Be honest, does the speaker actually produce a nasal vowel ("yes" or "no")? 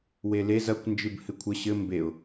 no